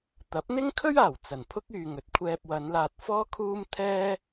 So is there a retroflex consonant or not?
no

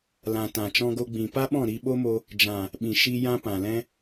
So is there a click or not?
no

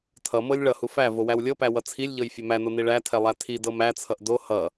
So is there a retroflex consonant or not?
yes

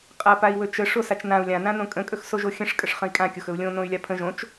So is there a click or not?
no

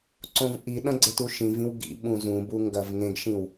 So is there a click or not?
yes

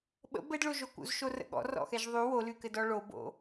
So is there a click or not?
no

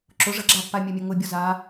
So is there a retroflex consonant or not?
yes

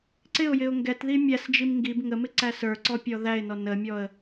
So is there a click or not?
yes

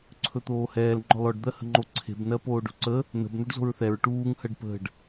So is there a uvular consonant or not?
no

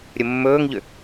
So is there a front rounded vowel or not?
yes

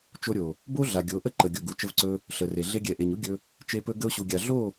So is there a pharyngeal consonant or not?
no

